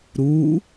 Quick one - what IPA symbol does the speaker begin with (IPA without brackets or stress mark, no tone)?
ɾ